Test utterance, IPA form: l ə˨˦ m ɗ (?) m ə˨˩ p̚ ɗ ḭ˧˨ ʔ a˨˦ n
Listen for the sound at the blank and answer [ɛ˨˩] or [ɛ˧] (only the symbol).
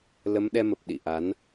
ɛ˧